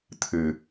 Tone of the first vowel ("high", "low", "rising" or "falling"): low